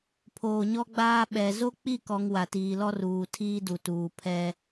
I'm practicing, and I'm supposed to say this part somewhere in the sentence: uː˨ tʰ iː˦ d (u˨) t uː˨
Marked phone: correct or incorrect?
correct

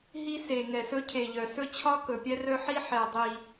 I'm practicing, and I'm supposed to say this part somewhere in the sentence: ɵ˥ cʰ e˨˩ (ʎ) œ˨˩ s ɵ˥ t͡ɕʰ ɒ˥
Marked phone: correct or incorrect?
correct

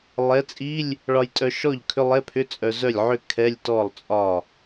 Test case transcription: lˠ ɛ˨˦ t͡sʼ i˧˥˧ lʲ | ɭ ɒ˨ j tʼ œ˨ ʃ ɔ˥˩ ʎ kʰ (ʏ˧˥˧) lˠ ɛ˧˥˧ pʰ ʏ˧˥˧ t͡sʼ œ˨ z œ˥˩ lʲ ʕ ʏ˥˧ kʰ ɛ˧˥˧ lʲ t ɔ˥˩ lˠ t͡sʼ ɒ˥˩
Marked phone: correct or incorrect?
correct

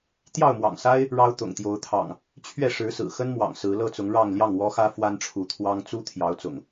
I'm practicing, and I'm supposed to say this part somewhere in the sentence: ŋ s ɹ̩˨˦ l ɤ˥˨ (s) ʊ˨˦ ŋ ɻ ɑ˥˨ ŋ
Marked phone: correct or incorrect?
incorrect: t͡s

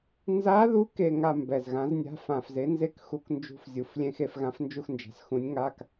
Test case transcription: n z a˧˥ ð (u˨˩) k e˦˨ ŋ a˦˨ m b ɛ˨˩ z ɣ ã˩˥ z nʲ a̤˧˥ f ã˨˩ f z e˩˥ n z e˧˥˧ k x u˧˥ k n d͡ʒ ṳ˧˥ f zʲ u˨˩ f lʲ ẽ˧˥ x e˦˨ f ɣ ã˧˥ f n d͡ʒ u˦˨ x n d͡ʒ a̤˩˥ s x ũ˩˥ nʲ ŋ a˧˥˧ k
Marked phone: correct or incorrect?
incorrect: u˧˥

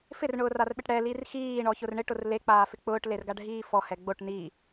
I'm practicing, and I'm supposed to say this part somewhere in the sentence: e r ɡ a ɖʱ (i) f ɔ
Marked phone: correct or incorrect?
incorrect: iː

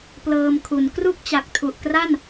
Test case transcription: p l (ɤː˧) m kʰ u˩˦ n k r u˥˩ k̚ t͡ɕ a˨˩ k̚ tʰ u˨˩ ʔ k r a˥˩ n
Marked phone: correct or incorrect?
correct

